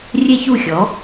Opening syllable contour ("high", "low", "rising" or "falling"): high